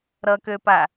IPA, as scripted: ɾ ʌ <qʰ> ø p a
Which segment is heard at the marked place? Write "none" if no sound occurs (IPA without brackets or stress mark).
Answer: k